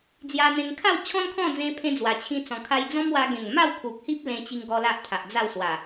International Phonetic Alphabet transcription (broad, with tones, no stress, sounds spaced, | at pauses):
d͡z j a˧ n̪ ẽ˧ ŋ kʰ a˥˧ w t͡ɕʰ ɔ̃˦ n kʰ ɔ̃˥˧ d͡z ẽ˧ pʰ ẽ˧ d͡z w a˨˩ t͡ɕʰ ĩ˦ t͡s ɔ̃˧ kʰ a˦ j d͡z ɔ̃˦ m w a˧ ɡ ẽ˨˩ ŋ m a˥˧ w kʰ u˨ k̚ h i˦ p̚ l ẽ˧ t͡ɕ i˧ ŋ ɡ ɔ˧ l a˦ ʔ t̪ʰ a˨ ʔ d͡z a˥˧ w s w a˨˩